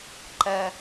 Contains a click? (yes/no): yes